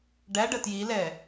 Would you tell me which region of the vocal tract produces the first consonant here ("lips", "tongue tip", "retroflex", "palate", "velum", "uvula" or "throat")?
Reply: retroflex